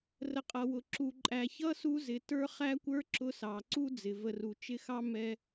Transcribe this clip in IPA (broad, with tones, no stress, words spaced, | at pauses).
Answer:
rə˨qʼʌ˩wʊ˩ ǁu˨ǃʼæ˨ çʌ˥su˦zɪ˨ tə˞˦χæ˥kʷə˞˥ ǁʊ˦sɑ˩ ǀu˥d͡zɪ˩ və˨ru˩t͡ʃɪ˦xɑ˥ mɛ˦